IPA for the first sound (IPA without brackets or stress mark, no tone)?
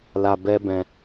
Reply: l